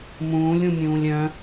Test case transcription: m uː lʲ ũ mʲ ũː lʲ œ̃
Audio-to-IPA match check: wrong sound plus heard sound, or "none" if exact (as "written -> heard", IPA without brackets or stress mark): uː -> ũː